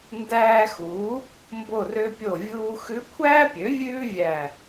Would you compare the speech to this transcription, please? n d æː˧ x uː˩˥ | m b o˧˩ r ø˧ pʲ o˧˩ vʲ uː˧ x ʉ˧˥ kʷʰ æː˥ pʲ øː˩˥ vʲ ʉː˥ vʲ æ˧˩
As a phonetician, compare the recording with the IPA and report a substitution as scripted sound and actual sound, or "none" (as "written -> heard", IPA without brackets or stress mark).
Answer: øː˩˥ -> ø˩˥